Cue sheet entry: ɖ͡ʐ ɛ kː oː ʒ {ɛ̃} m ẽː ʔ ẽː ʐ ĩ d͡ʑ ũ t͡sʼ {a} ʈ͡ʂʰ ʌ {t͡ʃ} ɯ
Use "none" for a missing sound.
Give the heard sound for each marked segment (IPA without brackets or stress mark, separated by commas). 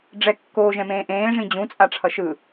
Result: ɛ̃, a, ʃ